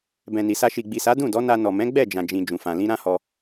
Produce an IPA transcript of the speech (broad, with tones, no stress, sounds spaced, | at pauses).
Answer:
b ɛ̃˨ n i˨ s a˧ ʃ i˨ ɡ͡b i˨ s a˨˦ d ũ˦˨ d ɔ˨˦ n a˧ n ɔ˨ m ɛ̃˨˦ ɡ͡b ɛ˦˨ d͡ʒ ã˨ d͡ʒ ĩ˨ d͡ʒ ũ˨ f ã˨ l ĩ˧ ɾ ã˦ h ɔ˧